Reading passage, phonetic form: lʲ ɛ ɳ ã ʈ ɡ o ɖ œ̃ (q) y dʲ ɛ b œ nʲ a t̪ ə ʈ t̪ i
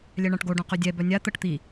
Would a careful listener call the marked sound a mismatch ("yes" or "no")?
no